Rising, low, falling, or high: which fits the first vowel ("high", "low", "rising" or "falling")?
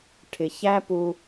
low